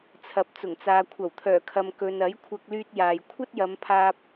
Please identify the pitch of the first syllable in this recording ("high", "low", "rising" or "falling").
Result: low